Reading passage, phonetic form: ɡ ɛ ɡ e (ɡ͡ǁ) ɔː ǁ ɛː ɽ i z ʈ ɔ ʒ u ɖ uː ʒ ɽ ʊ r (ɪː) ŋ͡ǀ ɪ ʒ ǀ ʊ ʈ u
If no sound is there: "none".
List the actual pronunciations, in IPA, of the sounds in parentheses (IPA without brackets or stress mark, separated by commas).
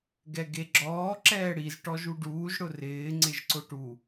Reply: ɡ͡ǁ, ɪː